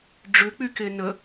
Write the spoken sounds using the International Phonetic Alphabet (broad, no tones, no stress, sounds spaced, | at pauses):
ɖ͡ʐ ʏ k͡p y k e n ə